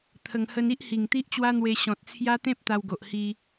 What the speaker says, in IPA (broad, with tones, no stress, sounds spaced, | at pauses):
t̪ʰ ə˨˩ ŋ h ə˧ n i˦ ʔ h i˨˩ ŋ t̪ i˦ ʔ t͡ɕ w a˦ n̪ w e˧ ɕ ɔ̃˨ t̚ t͡sʰ j a˦ t̪ ẽ˦ p̚ t̪ a˧ w ɡ o˨ ʔ h i˧